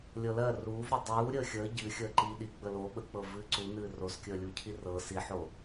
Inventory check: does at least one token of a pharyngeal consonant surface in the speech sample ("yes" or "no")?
yes